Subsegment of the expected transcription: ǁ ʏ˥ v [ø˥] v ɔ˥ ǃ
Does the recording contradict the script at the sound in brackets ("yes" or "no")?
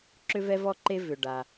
yes